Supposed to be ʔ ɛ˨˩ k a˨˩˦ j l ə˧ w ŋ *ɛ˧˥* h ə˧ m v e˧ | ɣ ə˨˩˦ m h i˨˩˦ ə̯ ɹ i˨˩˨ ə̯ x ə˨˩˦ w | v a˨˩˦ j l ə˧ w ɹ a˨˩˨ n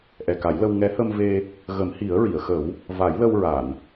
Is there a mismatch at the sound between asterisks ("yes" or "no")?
no